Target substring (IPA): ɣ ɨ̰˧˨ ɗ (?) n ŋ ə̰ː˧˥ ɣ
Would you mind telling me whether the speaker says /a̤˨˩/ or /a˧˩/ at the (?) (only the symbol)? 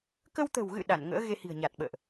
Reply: a˧˩